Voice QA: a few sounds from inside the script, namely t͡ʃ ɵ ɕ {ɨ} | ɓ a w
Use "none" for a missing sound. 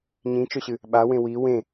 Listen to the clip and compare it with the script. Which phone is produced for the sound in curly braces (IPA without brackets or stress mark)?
ɨ